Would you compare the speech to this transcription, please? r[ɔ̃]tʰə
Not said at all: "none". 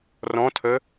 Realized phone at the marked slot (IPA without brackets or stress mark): ɔ̃